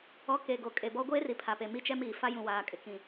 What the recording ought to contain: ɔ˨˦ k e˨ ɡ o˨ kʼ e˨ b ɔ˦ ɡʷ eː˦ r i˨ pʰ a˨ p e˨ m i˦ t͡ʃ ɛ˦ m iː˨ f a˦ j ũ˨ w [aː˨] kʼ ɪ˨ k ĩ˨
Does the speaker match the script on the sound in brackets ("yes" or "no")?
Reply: yes